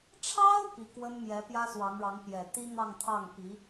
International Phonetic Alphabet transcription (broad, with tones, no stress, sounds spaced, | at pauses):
ʈ͡ʂʰ ɑ˥ ʊ̯ p i˧˥ k w ə˥ n m j ɛ˧˥ p j ä˥ s w ɑ˧˥ ŋ ɻ ɑ˧˥ ŋ p j ɛ˨˩ t̪ i˥ n̪ ɑ˥˧ ŋ t̪ʰ ɑ˥˩ ŋ p i˧˥